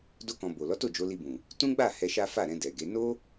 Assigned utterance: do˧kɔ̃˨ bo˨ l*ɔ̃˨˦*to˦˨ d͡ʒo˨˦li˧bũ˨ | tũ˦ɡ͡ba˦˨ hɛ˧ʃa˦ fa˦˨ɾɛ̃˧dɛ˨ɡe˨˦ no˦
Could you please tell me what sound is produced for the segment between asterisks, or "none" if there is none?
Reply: ɔ˨˦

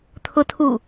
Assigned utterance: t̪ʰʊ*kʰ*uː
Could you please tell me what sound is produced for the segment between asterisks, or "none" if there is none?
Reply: tʰ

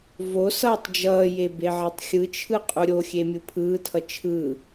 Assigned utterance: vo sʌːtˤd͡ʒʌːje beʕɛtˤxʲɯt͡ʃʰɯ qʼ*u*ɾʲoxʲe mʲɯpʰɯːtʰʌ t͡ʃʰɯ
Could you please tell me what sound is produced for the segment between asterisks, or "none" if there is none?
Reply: u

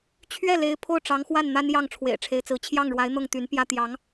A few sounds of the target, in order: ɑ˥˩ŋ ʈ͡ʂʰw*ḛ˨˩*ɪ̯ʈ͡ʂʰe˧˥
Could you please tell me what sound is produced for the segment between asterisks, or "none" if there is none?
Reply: ḛ˨˩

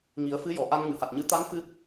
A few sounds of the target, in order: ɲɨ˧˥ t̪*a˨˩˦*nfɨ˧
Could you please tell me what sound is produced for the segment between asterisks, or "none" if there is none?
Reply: a˧˥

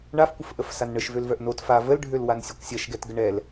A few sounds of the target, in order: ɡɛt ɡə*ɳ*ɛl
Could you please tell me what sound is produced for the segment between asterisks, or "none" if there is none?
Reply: ɳ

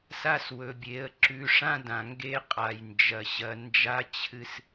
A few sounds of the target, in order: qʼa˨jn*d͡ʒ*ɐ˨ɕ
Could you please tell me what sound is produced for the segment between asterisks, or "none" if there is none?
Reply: d͡ʒ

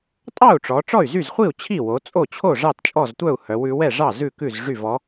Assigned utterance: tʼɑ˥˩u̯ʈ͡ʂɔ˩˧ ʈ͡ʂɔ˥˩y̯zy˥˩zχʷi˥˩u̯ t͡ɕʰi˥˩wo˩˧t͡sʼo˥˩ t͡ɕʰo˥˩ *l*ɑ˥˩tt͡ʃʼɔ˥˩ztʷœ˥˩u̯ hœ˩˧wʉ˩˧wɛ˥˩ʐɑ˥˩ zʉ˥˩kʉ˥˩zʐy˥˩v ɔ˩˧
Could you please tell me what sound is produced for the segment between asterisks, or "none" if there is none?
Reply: ʐ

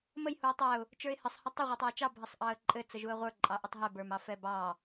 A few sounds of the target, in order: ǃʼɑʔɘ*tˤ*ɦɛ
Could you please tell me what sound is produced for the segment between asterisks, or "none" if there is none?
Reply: tˤ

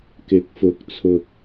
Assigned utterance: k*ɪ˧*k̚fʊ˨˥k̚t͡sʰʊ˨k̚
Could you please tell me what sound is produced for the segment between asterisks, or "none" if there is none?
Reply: ɪ˨˥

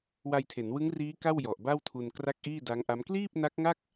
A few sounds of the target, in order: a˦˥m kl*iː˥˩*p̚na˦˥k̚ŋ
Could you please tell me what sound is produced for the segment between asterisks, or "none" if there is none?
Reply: iː˥˩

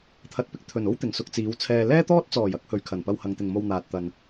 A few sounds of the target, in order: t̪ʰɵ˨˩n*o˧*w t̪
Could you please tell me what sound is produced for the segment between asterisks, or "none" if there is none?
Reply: o˥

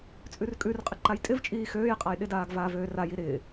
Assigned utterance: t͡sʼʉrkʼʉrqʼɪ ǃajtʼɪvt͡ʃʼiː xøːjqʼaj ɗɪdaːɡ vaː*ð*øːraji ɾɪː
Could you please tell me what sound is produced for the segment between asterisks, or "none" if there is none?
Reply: v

